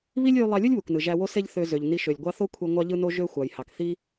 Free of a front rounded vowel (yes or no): no